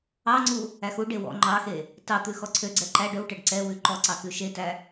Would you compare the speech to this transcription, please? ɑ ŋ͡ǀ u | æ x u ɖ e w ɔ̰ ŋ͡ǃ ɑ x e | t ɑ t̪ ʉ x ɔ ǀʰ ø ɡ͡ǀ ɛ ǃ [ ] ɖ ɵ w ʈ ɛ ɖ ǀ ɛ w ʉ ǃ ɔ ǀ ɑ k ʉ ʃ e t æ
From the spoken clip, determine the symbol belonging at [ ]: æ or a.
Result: æ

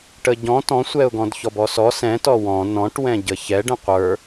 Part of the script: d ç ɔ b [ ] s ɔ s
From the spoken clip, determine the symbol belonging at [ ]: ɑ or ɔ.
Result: ɔ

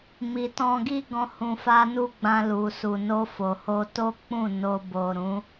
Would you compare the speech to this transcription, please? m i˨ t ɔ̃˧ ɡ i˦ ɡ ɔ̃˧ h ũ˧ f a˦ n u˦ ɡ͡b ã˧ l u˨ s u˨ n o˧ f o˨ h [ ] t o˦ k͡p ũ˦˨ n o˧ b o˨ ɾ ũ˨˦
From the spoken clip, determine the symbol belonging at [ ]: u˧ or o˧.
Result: o˧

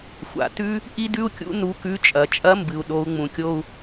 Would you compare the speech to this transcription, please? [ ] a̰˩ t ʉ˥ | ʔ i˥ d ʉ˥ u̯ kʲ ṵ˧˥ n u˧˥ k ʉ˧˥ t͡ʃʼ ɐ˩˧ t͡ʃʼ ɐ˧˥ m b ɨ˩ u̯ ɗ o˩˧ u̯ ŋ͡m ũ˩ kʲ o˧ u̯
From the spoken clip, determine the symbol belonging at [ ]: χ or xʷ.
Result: xʷ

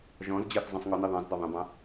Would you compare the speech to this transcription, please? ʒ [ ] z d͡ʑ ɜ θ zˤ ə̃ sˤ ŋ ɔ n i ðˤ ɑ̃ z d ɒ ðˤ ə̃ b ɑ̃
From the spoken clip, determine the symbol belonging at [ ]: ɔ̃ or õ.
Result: ɔ̃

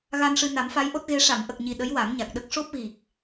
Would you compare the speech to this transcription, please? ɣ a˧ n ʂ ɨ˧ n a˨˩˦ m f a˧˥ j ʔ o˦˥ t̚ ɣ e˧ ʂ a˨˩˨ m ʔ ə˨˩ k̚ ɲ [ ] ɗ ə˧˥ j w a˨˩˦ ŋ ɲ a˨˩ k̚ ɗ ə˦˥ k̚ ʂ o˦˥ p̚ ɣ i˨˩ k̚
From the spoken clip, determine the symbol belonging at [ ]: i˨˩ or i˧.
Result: i˨˩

